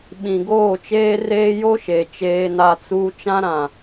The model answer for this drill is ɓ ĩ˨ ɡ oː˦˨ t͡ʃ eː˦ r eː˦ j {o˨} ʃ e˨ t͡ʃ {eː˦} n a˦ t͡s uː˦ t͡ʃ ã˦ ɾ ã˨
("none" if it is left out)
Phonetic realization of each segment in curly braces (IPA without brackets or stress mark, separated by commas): o˦, eː˦